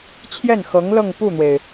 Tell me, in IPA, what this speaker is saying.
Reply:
t͡ɕʰ j ɛ˥˩ n x ɤ˧˥ ŋ l ɤ˥˧ ŋ p u˥˩ n̪ w e˩ ɪ̯

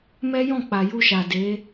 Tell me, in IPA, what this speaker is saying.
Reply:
m ɛ˦ j ɔ̃˦˨ k͡p a˨ j u˧ ʃ a˨ d e˨˦

